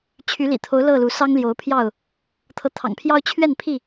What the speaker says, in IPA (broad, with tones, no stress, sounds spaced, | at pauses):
t͡ɕʰ y˨˦ l ḭ˨˩ t̪ʰ o˨˦ ʊ̯ l ɤ˥˨ l u˨˦ s ɑ˦ ŋ l j o˨˦ ʊ̯ pʰ j ɑ˥˨ ʊ̯ | t̪ʰ ɤ˨˦ t̪ʰ ɑ̰˨˩ ŋ pʰ j ɑ˦ ʊ̯ t͡ɕʰ ɥ ɛ˥˨ n pʰ i˥˨